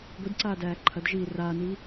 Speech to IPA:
ɡʷ i d ǀ aː d æː ǃʰ ɐ d ʒ iː r aː n iː

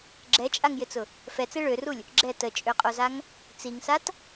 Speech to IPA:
ɡ͡ǁ ɛ t͡ʃʼ a ŋ j ɪ t͡s ʊ | f ɛ t͡s e ɭ ø r u lʲ | ɡ͡ǁ ɛ t ə t͡ʃʼ ø qʼ o z a ŋ | t͡s i ŋ s a t

